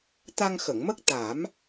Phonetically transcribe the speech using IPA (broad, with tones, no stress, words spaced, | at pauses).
t̪a˧ŋxə˨˩˨ŋmə˦˥k̚ t̪a˨˩˦m